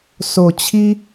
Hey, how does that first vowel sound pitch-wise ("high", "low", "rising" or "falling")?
low